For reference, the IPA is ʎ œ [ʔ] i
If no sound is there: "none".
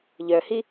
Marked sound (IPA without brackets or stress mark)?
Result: h